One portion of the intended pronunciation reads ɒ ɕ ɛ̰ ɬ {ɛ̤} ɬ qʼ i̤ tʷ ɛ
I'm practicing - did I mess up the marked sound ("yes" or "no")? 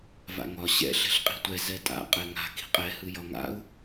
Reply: no